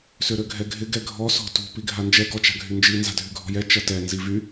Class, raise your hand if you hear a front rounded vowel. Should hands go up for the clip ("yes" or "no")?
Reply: yes